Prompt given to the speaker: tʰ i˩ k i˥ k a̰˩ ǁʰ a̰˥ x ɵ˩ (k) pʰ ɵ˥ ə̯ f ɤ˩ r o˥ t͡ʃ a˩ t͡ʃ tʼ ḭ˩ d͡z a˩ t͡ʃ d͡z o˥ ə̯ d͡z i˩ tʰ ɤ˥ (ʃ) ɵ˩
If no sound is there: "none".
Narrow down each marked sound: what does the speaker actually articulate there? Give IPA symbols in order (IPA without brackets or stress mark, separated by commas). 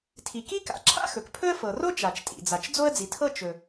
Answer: k, t͡ʃ